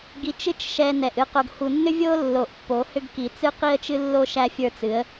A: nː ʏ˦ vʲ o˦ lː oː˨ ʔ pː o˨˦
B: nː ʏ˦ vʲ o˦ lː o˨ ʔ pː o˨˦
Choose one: B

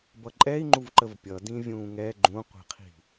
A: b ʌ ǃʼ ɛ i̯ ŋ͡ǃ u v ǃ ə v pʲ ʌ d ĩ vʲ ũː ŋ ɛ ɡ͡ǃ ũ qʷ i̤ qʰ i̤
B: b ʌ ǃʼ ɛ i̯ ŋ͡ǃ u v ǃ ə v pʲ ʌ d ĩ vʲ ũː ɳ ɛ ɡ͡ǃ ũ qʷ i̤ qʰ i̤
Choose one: A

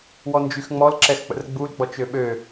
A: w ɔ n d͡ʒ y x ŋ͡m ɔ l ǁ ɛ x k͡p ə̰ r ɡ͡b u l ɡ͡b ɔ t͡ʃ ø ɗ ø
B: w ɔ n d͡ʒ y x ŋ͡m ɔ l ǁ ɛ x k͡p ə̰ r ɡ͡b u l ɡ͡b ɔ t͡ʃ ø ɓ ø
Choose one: B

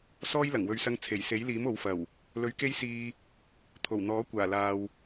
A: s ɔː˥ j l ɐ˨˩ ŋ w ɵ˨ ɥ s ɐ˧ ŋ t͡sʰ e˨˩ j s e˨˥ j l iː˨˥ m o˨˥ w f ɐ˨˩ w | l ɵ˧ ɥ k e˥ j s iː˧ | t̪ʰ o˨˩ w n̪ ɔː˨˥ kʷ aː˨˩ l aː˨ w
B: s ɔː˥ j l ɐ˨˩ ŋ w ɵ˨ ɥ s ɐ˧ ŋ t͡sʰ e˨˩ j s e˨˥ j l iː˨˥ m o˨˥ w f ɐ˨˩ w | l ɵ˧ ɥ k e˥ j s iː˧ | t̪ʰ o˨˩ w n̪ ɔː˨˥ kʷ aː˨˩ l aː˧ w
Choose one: A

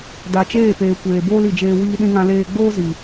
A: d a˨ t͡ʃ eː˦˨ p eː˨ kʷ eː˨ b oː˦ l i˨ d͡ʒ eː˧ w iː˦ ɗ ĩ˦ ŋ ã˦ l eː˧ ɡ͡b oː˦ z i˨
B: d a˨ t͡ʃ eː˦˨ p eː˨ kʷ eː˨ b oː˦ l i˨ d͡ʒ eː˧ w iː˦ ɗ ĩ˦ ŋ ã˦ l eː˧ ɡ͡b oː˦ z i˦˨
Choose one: A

